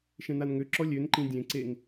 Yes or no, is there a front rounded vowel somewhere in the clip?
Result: yes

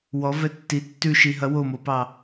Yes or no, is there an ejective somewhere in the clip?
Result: no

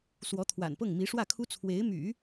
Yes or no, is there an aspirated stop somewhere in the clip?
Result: yes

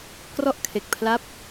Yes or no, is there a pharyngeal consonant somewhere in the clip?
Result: no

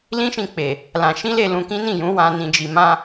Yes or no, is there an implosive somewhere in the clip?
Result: no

